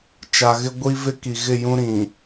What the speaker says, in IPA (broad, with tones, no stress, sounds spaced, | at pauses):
t͡ʃ a˨ ɣ ɪ˦ ɡʷ i˦ v ɪ˦ k i˨ ɣ ɪ˦˨ j ũ˦ ɾ ĩ˨